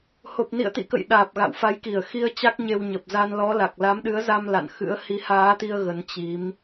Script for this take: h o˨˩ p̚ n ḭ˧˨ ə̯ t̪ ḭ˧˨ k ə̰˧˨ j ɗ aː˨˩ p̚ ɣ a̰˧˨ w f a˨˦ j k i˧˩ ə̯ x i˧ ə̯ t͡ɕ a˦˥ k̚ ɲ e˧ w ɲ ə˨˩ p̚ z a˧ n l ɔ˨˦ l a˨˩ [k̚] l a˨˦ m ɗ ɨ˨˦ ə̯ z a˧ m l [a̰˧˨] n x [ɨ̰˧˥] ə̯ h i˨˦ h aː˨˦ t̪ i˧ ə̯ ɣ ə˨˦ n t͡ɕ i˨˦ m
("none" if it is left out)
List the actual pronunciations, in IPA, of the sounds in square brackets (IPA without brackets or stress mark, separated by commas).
k̚, a̰˧˨, ɨ̰˧˥